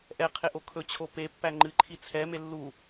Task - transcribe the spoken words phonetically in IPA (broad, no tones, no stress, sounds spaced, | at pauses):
ʔ ɛ qʰ e ʔ o kʰ ɵ t͡ɕʰ o p e pː æ ŋ͡ǃ ɨ ǃʰ i t͡sʰ ɛ m e lː u